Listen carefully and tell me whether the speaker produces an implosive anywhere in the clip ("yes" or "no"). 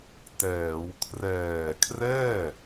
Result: no